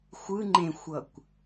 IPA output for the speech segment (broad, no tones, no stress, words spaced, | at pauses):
xʷɯ ŋ͡ǃẽxʷʌkʷ